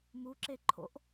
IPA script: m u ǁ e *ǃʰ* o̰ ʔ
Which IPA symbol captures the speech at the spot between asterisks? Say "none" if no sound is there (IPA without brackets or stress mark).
ǃʰ